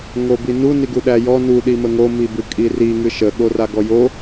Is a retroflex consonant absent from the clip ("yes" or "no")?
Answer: yes